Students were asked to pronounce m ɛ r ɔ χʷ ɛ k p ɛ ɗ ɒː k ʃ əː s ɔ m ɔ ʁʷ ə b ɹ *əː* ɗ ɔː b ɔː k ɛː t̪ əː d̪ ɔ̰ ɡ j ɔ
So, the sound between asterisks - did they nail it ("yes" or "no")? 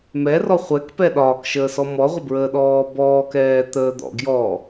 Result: yes